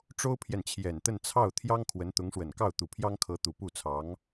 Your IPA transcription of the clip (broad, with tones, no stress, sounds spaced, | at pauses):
ʈ͡ʂ o˥ ʊ̯ pʰ j ɛ˨ n t͡ɕʰ j ɛ˨˩ n t̪ ə˥˧ n t͡sʰ ɑ˥˩ ʊ̯ t̪ʰ j ɑ˥ ŋ kʰ w ə˧˥ n t̪ ʊ˧˥ ŋ ʂ w ə˨˩ n k ɑ˥˩ ʊ̯ t̪ u˨˩ pʰ j ɑ˥ ŋ kʰ ɤ˧˥ t̪ u˨˩ p u˥˩ t͡sʰ ɑ˧˥ ŋ